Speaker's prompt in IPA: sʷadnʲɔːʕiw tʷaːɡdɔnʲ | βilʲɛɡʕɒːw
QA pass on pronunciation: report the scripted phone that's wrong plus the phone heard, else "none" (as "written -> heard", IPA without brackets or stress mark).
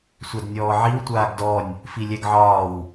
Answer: β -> f